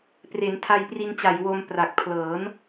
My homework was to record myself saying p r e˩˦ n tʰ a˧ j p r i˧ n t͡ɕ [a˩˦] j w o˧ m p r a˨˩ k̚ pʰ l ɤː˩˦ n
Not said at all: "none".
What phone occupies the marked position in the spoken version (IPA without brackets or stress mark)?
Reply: a˨˩